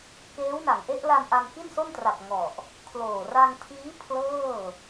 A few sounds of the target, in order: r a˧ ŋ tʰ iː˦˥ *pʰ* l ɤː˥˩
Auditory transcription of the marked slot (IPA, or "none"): pʰ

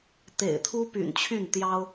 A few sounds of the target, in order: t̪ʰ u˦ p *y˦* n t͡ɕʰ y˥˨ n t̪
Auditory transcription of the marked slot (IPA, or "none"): y̰˨˩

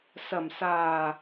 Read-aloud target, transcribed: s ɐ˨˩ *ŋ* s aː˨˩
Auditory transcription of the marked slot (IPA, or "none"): m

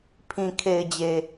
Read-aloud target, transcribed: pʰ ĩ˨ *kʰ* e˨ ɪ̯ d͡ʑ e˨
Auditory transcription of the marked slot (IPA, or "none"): kʰ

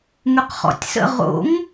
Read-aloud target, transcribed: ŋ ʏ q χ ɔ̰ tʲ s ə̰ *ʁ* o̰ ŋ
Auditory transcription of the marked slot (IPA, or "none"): ʁ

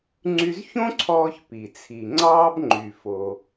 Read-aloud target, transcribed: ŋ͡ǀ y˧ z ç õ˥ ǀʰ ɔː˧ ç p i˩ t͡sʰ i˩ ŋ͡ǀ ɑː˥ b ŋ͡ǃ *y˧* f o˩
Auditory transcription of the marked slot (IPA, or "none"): y˩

